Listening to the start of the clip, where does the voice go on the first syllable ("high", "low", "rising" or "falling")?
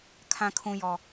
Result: low